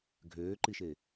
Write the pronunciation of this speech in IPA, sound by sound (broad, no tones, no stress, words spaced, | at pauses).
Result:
ɡʱøːǃiʃe